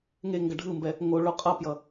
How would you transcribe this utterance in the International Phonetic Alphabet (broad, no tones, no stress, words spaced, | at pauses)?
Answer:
ŋeŋɡʌ ɖʱɯmbɛ | ŋo ɭoqʼʌpjʌ